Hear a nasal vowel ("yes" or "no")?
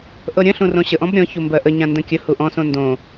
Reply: yes